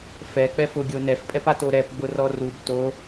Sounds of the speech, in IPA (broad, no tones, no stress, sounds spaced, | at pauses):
f ɛ k͡p ɛ f ʊ ɡʲ o n ɛ f pʼ ɛ p a t o ɾ ɛ p ɡ͡b ʊ r ɔ r u b t o